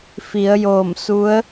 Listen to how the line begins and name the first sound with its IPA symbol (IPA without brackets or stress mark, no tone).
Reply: f